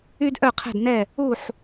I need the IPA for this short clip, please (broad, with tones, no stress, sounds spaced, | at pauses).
y˥ d ʔ œ˥˩ qʰ ɛ̤˥˩ d n ɛ˥˩ | u˥˩ ħ